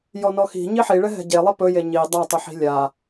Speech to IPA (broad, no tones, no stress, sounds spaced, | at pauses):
j ɔ n ɔ x i̤ ɲ i ħ i ɭ ɛ ɦ ɛ̤ ɟ e lˠ i p ɵ j e ɲ i dˤ a tˤ u ħ i̤ lʲ a